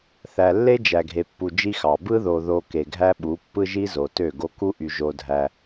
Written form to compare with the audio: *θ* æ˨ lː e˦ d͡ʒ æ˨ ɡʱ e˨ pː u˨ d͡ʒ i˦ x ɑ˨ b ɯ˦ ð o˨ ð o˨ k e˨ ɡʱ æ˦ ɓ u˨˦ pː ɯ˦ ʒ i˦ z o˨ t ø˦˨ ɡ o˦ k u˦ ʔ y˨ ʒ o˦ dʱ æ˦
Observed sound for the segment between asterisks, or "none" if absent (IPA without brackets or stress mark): θ